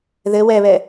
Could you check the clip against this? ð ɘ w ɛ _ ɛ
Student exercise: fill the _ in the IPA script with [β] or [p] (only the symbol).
β